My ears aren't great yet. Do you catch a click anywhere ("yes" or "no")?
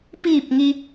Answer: no